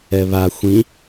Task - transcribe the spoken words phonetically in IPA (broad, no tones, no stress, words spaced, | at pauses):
ɛβa xʷĩ